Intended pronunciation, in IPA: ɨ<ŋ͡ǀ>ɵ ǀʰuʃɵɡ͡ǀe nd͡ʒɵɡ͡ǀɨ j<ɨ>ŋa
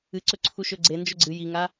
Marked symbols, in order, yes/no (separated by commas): no, no